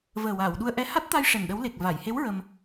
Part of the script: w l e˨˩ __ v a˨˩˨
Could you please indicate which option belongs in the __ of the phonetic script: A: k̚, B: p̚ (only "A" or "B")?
A